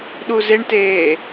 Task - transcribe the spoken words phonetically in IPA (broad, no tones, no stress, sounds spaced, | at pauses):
ɗ u z e ɳ t eː